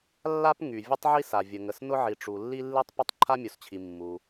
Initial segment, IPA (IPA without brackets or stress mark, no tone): lː